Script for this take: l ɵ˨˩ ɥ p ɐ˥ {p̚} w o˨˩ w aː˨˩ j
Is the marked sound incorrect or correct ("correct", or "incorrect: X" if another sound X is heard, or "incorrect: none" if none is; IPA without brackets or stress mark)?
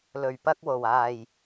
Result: incorrect: k̚